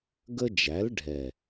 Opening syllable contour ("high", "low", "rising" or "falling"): high